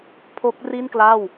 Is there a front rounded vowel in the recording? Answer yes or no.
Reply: no